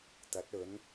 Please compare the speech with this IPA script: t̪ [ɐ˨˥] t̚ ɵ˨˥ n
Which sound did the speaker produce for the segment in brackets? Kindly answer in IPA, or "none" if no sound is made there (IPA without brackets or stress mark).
ɐ˨˥